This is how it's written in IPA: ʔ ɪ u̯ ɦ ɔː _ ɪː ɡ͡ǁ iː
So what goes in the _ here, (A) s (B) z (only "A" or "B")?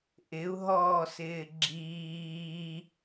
A